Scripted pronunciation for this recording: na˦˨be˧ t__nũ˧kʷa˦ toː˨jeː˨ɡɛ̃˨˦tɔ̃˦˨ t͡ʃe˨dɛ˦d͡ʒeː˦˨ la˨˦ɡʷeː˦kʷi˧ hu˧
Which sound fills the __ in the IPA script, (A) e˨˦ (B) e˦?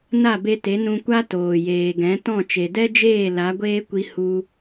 A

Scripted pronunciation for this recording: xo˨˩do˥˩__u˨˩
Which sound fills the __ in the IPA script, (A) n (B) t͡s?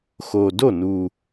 A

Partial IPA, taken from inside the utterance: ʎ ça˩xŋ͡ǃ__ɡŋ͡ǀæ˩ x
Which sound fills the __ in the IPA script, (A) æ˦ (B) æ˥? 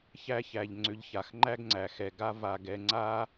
B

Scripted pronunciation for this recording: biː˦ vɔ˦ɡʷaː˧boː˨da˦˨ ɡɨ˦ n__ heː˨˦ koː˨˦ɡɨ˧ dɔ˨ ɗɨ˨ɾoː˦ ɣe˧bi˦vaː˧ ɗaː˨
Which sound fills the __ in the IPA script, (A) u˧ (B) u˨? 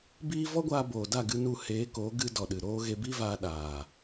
A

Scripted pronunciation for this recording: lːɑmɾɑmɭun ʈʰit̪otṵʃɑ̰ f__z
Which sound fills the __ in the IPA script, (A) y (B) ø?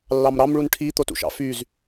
A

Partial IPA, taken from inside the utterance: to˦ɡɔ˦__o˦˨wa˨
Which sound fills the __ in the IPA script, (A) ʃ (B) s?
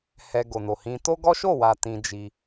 A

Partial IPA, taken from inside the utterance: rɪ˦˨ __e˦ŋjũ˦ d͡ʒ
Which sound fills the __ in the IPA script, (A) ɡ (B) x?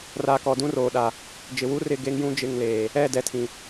A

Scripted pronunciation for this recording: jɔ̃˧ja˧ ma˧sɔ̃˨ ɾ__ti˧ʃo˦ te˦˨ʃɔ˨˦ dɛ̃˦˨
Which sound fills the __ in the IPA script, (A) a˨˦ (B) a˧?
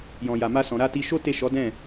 B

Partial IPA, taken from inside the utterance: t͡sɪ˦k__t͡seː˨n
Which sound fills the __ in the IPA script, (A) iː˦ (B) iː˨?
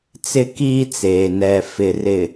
A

